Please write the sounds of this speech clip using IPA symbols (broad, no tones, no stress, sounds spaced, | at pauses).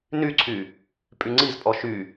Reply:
n y ǀʰ y | pʼ y ŋ͡ǀ i z pʼ ɔ ʃ y